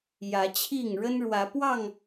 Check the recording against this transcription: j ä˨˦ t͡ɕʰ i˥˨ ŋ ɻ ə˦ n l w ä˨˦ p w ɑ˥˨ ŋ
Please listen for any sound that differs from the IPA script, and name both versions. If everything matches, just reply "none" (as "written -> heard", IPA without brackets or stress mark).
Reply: l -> ɻ